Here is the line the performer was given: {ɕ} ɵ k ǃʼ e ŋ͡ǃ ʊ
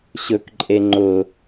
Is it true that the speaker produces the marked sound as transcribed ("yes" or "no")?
yes